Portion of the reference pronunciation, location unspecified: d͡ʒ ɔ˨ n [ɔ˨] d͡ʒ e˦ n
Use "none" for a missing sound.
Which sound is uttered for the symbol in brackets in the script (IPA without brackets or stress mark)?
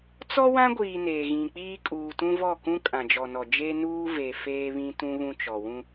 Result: ɔ˨